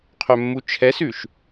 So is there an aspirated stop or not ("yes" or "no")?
yes